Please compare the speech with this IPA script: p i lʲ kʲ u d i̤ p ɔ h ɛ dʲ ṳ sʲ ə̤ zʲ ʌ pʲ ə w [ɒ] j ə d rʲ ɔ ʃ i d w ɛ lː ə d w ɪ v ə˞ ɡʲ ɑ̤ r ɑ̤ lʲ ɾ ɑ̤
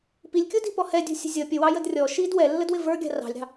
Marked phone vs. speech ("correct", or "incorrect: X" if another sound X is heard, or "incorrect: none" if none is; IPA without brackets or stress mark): incorrect: ɑ